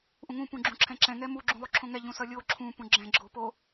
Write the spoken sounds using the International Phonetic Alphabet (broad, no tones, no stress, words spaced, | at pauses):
ʔũŋũ pũɡ͡ǁũǁʰɛ̃ǁɛ̃ ŋɛmu ɡ͡ǁũlˠuǁʰõŋɛ ʎũsʌlʲo ǁʰũ pũɡ͡ǁɛ̃ ɡ͡ǁopo